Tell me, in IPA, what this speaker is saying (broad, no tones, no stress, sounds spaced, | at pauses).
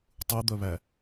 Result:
tˤ u d̪ œ β æ